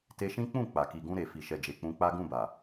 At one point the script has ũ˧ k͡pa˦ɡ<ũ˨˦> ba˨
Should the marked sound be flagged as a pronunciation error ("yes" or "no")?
yes